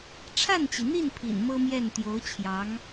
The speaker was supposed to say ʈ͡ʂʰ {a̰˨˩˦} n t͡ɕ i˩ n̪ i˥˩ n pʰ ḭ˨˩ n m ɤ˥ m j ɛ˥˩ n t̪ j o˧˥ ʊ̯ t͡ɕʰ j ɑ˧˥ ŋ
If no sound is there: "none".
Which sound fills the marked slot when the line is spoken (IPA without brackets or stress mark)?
a˥˩